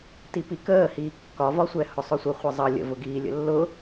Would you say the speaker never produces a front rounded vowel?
yes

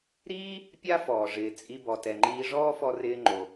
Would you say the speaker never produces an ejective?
no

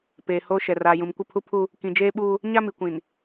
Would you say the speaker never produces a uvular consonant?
yes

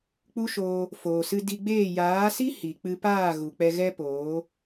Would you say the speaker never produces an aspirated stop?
yes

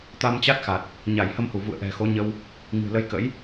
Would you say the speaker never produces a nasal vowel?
yes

